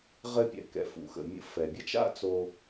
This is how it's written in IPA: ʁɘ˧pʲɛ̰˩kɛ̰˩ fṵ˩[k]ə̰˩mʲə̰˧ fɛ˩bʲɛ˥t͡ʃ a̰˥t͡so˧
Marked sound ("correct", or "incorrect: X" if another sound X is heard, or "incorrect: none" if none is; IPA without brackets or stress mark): incorrect: x